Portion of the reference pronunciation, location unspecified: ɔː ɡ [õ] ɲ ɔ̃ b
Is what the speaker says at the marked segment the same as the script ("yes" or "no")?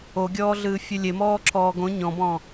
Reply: yes